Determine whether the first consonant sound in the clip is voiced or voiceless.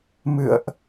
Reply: voiced